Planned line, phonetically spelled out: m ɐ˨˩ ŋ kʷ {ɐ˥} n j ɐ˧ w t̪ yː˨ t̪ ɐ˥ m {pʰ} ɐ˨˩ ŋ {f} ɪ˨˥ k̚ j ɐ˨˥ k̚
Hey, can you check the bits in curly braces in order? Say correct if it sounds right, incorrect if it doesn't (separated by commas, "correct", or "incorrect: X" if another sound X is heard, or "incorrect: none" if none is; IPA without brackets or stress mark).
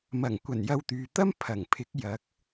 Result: incorrect: ɐ˨˩, correct, incorrect: pʰ